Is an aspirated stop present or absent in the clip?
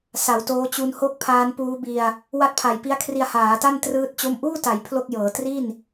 present